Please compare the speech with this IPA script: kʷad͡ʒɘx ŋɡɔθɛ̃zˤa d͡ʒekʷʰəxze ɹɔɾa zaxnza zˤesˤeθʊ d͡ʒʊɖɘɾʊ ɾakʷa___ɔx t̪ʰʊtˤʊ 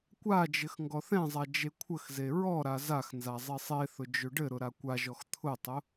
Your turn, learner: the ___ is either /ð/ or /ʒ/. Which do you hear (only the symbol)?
ʒ